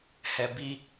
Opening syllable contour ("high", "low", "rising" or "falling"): low